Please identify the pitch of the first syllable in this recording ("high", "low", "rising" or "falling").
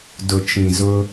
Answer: low